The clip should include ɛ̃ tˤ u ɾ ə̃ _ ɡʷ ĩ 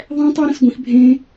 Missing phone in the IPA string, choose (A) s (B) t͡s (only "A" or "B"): A